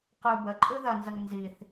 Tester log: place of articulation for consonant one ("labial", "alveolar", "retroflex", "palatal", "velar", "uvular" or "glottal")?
uvular